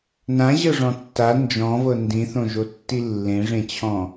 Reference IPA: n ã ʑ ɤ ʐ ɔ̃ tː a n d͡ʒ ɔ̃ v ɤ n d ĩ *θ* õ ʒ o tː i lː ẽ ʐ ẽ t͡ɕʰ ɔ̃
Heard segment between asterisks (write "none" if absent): θ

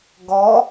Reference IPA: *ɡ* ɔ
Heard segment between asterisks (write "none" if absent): ɡ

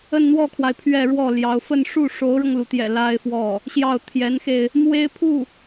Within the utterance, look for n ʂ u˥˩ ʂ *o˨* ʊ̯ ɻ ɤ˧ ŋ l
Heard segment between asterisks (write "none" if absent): o˧˥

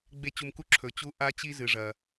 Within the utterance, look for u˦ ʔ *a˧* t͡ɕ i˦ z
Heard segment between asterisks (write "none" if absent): a˦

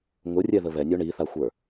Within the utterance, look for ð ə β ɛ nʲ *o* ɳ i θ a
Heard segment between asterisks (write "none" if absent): o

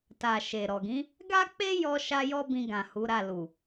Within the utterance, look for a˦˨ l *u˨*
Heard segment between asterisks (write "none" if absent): u˨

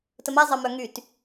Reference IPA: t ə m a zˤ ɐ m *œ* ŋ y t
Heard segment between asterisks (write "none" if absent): œ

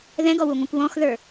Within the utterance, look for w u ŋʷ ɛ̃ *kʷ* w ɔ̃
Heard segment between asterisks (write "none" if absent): kʷ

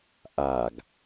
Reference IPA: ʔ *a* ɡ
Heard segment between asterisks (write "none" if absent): a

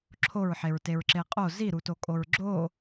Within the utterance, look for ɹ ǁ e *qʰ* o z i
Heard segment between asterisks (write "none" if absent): qʼ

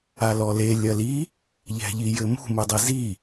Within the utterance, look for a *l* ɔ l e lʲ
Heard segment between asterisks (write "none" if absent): l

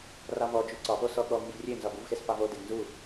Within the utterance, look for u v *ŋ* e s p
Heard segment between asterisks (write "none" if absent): x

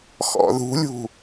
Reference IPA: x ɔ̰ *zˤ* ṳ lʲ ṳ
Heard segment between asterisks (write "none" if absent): ð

